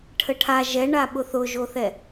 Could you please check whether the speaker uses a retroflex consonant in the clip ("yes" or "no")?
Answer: yes